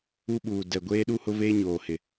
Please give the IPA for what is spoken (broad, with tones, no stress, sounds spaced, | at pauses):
u˦ ɓ uː˨ d ɛ˨ ɡʷ eː˦ ɗ u˦ h ʊ˦ v eː˦ ɲ oː˨ h ɪ˨